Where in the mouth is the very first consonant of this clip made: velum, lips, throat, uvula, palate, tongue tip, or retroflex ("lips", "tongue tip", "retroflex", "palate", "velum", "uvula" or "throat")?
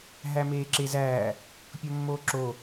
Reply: throat